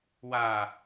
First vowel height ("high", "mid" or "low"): low